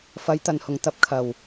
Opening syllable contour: rising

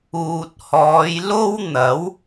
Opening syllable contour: low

